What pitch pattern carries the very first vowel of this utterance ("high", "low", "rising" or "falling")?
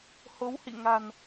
rising